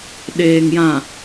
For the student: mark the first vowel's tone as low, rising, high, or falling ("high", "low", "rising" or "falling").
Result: low